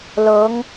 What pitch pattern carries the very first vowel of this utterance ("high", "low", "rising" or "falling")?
rising